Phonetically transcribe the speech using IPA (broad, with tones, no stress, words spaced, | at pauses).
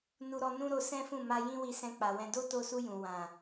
nu˧ɾɔ˧ nũ˦ɾo˧ sɛ̃˦fũ˦˨ma˧ jĩ˦wi˧ sɛ̃˧k͡pa˨wɛ̃˧ do˦to˧su˧ jũ˨ wã˨